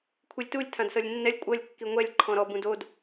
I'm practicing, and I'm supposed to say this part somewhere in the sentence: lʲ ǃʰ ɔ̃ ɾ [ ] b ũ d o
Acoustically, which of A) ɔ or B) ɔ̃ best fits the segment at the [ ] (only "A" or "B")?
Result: A